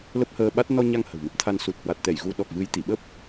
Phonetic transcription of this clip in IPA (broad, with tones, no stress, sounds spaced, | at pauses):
l ə˦˥ p̚ h əː˧ ɓ a˦˥ t̚ n ɔ˧ ɲ a˧ ŋ h ə̤˨˩ w m ɨ˨˩ p̚ t̪ʰ a˧ n s u˨˩ t̚ h w a˨˩ t̚ t̪ ɛ˧˩ j ɣ u˨˦ ɗ ɔ˨˩ k̚ v ɨ˨˦ j t̪ i˧˩ ɓ ə˦˥ p̚